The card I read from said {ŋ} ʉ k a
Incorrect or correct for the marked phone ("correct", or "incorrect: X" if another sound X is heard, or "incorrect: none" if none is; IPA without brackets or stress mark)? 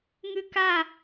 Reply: correct